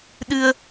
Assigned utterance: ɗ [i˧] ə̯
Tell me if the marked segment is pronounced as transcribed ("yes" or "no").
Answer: no